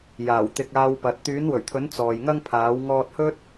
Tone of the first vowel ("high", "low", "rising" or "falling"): low